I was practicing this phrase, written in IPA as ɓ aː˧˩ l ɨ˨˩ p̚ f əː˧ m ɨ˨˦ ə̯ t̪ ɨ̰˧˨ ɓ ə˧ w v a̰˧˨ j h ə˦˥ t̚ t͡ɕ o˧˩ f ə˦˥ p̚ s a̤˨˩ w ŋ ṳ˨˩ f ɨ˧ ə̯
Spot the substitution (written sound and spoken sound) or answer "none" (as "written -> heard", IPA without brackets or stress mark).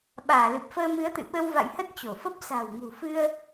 none